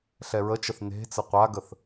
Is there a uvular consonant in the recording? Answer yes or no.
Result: yes